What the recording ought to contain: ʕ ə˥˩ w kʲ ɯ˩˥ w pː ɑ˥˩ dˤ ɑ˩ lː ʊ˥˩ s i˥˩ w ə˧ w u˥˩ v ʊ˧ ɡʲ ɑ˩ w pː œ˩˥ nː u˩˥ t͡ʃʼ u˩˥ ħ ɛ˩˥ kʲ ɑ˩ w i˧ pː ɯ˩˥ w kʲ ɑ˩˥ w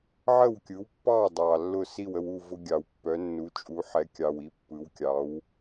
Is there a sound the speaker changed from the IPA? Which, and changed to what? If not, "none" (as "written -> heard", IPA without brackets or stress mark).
none